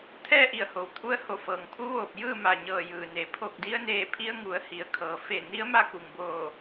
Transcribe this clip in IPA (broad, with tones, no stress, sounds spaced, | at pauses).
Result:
t̪ʰ ɛː˥˨ ʔ i˧˩ ə̯ h o˩ w t̪ʰ u˧ ə̯ h o˧˩ f ɤː˩ ŋ pʰ u˧˥ ʋ oː˧˩ p̚ j ɯː˥˨ m a˧˩ ɲ ɤː˧˩ j ɯː˩ n e˩˧ pʰ o˧˩ k̚ d i˧ ə̯ n eː˧˩ pʰ i˧ ə̯ ŋ u˩˧ ə̯ h i˩˧ ə̯ kʰ ɤː˩ f e˧˩ n i˧˥ ə̯ m a˥˨ k u˧˩ ŋ b oː˧˩